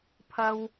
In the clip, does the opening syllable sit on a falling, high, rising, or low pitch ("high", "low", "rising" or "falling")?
high